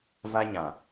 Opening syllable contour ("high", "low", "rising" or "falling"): high